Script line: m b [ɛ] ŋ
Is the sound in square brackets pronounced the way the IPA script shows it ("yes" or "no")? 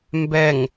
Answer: yes